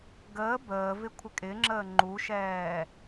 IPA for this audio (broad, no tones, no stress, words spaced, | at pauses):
ɡəː bəːvɪ kʷʰɪkʼɪŋ͡ǁəː ŋ͡ǃuʃɛː